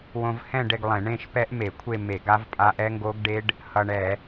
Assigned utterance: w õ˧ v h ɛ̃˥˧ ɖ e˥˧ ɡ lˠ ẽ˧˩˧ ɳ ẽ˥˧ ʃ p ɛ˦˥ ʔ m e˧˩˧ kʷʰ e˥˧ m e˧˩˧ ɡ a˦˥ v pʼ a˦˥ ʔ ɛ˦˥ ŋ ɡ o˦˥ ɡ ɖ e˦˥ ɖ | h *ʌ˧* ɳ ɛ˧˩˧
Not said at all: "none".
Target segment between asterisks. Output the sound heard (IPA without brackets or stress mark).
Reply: ʌ˧